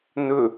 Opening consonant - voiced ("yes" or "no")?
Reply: yes